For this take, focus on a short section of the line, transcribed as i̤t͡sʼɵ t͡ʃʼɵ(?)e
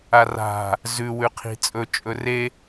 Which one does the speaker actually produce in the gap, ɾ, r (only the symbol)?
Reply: r